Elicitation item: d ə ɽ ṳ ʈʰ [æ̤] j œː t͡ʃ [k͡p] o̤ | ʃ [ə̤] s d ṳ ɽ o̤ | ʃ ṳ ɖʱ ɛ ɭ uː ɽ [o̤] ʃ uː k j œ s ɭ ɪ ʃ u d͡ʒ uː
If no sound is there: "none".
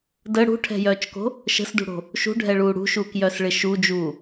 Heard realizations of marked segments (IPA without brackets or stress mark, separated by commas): ɛ̤, k, ə̤, ṳ